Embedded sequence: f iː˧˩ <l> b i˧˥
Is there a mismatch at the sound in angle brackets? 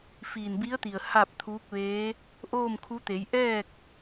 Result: yes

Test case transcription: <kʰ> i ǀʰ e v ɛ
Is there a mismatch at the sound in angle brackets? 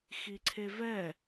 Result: yes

